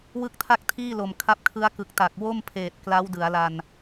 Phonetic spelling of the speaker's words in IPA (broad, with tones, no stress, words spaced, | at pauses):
wɯ˥˩k̚tʰa˥˩k̚tʰiː˥˩ lo˨˩mkʰa˦˥p̚kʰɯ˦˥a̯ kɯ˨˩k̚ta˨˩k̚wo˥˩m pʰeː˨˩t̚kla˦˥wdɯ˩˦a̯la˧n